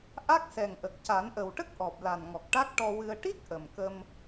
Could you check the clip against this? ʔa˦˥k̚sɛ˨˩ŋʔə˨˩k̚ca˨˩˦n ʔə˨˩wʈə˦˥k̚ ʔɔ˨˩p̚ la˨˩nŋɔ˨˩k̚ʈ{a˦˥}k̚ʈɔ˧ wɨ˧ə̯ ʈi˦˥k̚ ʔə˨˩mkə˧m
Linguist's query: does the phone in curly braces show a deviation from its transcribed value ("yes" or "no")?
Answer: no